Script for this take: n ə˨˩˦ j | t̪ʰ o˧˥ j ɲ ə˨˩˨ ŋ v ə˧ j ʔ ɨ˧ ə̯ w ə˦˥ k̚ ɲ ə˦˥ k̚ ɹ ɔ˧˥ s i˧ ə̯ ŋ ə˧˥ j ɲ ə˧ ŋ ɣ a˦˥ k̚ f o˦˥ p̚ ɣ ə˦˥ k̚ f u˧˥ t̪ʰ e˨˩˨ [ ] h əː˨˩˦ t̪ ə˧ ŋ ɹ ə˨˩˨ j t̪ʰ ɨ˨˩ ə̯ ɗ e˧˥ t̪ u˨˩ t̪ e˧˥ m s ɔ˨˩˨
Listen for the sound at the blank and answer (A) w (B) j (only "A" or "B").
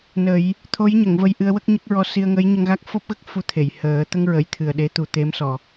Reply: B